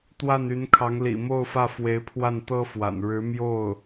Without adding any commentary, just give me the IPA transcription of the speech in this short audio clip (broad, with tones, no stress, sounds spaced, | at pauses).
t̪ w a˥˩ n y˧˥ n kʰ ɑ˧˥ ŋ l ḭ˨˩ m o˥˧ ʊ̯ f ä˥˩ f w e˧˥ ɪ̯ pʰ w a˥˩ n t̪ ɤ˥ f w a̰˨˩ n ɻ ɻ̩˧˥ m j o˥˩ ʊ̯